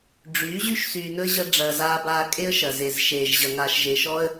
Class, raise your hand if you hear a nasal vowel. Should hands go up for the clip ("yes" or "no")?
no